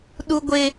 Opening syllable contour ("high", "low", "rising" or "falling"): high